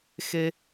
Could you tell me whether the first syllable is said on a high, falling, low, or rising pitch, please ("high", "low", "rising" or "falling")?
high